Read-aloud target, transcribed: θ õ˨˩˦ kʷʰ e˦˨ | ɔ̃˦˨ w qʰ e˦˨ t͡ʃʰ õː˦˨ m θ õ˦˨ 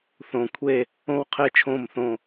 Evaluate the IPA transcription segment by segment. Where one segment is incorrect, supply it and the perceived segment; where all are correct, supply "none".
ɔ̃˦˨ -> õ˦˨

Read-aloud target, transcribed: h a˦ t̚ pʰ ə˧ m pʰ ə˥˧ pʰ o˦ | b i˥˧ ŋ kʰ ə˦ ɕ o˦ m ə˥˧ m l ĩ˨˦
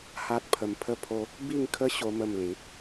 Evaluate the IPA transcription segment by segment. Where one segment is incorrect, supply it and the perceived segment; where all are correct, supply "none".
none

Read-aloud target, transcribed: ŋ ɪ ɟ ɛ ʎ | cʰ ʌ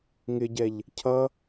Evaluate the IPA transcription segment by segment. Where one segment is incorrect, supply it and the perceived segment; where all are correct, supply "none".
none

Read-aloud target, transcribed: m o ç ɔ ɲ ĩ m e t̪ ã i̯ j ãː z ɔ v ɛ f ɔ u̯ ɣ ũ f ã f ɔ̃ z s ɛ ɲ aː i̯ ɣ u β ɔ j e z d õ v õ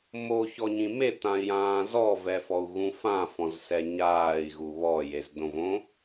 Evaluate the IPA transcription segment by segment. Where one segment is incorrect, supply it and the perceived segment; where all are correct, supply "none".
none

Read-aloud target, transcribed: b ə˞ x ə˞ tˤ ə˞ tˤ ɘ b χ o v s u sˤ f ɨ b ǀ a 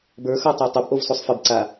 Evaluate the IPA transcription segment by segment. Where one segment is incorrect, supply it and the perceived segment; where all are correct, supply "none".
χ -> ʔ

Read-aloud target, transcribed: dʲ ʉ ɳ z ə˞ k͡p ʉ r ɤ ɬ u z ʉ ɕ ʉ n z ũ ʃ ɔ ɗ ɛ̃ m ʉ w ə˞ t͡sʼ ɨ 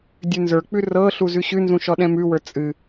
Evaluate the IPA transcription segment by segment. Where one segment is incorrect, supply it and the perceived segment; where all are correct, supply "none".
ɳ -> n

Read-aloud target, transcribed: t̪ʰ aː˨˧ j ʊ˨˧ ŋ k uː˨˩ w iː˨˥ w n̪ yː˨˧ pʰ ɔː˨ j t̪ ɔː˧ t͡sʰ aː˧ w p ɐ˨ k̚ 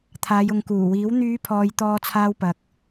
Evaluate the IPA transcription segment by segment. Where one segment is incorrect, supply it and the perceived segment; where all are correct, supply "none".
none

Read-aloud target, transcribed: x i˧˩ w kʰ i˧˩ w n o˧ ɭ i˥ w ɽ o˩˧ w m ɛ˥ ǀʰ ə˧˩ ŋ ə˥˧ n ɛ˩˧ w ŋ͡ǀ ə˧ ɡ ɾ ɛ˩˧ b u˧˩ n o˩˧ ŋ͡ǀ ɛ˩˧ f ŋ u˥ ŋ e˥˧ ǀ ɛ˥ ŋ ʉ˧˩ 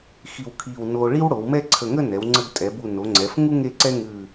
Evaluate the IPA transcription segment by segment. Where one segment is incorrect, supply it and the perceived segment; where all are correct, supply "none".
ɾ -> tʼ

